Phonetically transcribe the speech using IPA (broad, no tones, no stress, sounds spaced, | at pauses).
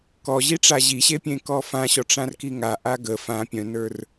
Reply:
k ɔ ʑ i ʈ͡ʂ a ʑ i ɕ e pʲ ẽ k ɔ f ã ɕ ɔ ʈ͡ʂ ã r k i ŋ a ʔ a ɡ ə f ã pʲ œ̃ n ə˞ r